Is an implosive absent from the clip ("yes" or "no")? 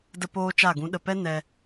no